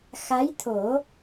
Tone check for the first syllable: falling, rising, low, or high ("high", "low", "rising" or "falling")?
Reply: rising